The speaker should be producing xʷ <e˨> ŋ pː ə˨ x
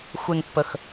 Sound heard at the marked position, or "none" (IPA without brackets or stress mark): e˨